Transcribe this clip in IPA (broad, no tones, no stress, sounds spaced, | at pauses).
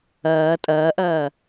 ɐː tʼ ɐː ʔ ɐː